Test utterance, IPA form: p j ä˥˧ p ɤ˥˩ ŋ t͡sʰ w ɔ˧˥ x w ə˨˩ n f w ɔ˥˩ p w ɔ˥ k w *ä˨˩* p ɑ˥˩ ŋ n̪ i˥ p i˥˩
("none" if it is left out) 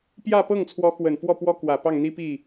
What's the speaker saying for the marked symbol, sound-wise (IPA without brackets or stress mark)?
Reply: ä˨˩